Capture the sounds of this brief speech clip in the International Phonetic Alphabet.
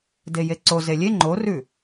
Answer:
dejeǀo zelʲe ŋ͡ǃorʉ

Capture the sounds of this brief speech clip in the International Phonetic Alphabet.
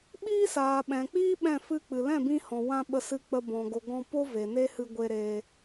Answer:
ɓiː˦saː˨ɓɛ̃˨k͡piː˦ ɓɛ̃˦˨fɨ˦k͡pɨ˨ lɛ̃˦˨bĩ˧hɔ̃˨ wã˧ ɓə˧sɨ˧k͡pə˧ bɔ̃˨ ɡo˨ ɡɔ̃˧po˦ ve˨ne˦hɨ˧ ɡʷe˧ɾeː˧

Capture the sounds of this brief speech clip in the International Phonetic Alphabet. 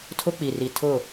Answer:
tʰʊ˦k͡pi˨ri˨tʰʊ˦˨

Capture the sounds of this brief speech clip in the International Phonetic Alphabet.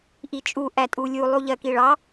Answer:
ʔit͡ʃʼu ʔætʼulʲu lˠuʎɜkiɭɑ

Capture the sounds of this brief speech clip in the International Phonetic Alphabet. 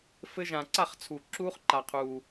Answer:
fɘ˦ʒã˧ ǀa˦˨χt͡sʰu˨ ǁuː˦χǃa˧qʰuː˧

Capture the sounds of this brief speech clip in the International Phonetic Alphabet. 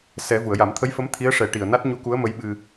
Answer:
sɛ˨˩˦ vu˨˩˨ə̯ja˨˩˦mt̪ʰə˧˥jfə˧˥m t̪ʰi˧˥ə̯ʂɛ˨˩˦ʈi˨˩ə̯na˦˥t̚ ɲu˧˥ku˧˥ə̯mə˧˥jɓɨ˧

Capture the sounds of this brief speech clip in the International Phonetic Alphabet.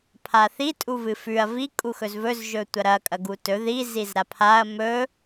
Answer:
pʰaθi tʼuvɨfʉɐ̯ vi kʼuxɵzvɵz ʒɵtʷɐɾɐ kʼɐɡutɵ ði zizɾapʰaɐ̯ mɵ

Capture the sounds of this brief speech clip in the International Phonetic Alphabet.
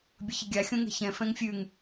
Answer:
bʲəçəɡʲa xʲõŋɛ̤çɛ̃ fɛ̃ŋfʲʉŋ

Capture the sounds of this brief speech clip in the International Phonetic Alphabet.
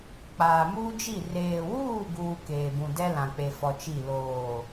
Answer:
k͡paː˨muː˦d͡ʒi˦˨ reː˨wuː˦˨ɡuː˨ keː˨ bũ˨dɛ˦ lã˨k͡pe˨fɔ˨ t͡ʃi˦˨ loː˦˨

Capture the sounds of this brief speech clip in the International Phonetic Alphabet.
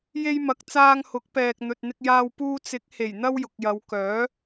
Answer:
je˧jmɐ˨k̚ t͡saː˧ŋhʊ˨˥k̚pɛː˨k̚ n̪ɵ˨t̚n̪ɪ˧k̚jaː˧w puː˧t͡sɪ˨˥k̚he˨˩j n̪ɐ˥wjʊ˨k̚jɐ˨˧w kœː˨˥

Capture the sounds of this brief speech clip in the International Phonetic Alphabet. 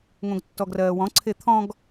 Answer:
ŋõɡtːɔɡrɜːwɔ̃ ǀʰet̪ʰɔ̃ɡ

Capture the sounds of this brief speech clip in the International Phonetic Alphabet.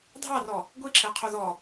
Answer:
dʱɑrɔ | ɡʷiǁʰɛqʰo ðɔ

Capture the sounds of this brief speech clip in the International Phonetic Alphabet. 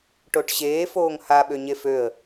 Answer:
ʈoʈɕeː foːŋha ɓøɲeføə̯

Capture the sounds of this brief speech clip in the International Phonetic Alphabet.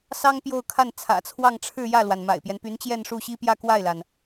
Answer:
sɑ˥ŋ pjo˥˧ʊ̯kʰa˥˩nt͡sʰä̰˨˩t͡sʰwɑ˥˧ŋ ʈ͡ʂʰɻ̩˥˧jä˥˩lwa˩n ma̰˨˩ɪ̯pjɛ˦npy˧˥nt͡ɕjɛ˥˧n ʂu˥˩ɕi˥pjä˥˧ kwa˥˩ɪ̯la˩n

